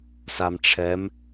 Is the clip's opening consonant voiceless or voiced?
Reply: voiceless